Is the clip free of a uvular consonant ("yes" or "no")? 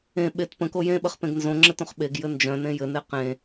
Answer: no